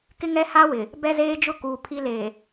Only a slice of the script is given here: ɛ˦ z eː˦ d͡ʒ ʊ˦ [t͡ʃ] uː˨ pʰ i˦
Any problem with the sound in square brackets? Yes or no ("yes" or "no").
yes